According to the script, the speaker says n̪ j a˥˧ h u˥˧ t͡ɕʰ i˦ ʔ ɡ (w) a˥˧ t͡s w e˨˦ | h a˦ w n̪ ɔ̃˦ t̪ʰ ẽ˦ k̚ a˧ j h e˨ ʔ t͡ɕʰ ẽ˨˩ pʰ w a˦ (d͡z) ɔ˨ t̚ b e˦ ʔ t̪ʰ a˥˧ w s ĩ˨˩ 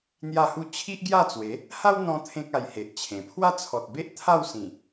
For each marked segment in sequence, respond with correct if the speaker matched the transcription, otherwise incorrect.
incorrect: j, incorrect: t͡sʰ

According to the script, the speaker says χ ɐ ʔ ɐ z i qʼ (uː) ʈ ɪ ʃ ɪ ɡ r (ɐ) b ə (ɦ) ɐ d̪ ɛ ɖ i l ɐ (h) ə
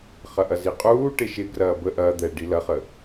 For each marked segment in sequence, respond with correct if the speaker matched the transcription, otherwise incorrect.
correct, incorrect: ɐː, incorrect: ʔ, incorrect: χ

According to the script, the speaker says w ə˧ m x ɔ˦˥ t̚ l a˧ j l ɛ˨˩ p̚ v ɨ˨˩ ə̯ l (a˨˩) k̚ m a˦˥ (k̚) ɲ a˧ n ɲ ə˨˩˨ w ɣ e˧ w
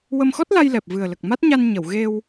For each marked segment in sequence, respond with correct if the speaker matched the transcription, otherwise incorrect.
incorrect: ə˨˩, incorrect: t̚

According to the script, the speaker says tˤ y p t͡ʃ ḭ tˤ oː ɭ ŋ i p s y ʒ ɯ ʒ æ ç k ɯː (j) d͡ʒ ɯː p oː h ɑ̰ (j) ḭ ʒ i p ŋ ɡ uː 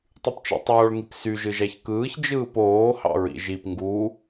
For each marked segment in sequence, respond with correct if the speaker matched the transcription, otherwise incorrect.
incorrect: ç, incorrect: ɹ

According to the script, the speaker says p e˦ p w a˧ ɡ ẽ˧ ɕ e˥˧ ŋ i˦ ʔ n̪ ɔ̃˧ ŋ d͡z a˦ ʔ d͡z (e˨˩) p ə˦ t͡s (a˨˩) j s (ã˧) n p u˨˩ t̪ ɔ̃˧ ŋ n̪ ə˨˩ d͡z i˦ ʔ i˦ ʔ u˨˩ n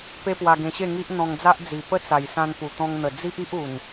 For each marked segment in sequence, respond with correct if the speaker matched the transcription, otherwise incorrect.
incorrect: i˨˩, correct, correct

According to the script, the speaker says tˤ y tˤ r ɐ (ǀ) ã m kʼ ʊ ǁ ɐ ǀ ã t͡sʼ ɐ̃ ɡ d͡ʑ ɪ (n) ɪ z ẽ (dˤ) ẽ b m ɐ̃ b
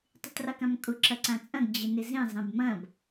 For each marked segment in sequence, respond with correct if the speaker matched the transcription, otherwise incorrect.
incorrect: k, correct, incorrect: zˤ

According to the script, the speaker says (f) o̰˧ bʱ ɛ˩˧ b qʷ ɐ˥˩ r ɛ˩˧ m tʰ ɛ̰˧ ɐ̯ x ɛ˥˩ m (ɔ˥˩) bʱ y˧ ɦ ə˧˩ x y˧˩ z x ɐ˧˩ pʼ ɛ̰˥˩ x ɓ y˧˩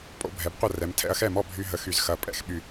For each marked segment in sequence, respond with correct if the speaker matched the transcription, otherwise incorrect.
incorrect: pʼ, correct

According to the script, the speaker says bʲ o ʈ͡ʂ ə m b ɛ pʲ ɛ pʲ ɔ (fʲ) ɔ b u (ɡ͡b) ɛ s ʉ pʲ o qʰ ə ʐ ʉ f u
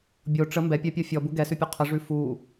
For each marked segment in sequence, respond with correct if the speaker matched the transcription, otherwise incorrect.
correct, incorrect: ɡ

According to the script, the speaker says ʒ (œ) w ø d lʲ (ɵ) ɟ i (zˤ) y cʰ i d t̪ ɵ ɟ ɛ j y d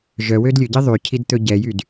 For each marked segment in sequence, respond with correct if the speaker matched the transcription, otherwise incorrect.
correct, correct, incorrect: ðˤ

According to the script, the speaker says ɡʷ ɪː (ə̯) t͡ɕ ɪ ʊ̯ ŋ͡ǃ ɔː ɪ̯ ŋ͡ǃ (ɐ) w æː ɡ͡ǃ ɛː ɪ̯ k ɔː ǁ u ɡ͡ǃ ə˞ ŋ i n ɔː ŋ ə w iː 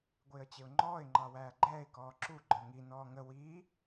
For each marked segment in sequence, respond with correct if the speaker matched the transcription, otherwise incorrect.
correct, incorrect: ɑ

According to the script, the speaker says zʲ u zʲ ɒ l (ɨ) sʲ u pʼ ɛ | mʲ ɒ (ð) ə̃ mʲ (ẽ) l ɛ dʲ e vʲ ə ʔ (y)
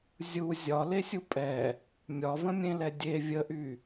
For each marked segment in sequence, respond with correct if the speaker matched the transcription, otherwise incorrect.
incorrect: e, incorrect: v, correct, correct

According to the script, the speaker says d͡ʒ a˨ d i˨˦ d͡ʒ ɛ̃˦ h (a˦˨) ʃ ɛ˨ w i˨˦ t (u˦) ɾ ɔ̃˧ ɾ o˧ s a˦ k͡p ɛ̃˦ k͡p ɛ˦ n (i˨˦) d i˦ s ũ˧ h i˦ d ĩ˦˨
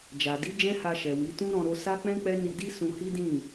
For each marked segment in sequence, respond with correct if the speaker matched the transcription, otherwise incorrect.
incorrect: a˧, incorrect: ũ˦, incorrect: i˧

